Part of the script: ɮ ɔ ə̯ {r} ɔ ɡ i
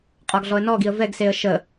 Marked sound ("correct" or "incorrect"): incorrect